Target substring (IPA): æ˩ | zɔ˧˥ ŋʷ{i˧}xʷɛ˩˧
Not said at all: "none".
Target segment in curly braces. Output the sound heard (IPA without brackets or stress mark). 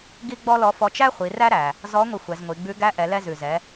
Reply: i˧